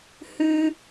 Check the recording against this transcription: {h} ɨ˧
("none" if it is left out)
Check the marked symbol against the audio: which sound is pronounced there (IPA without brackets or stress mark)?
h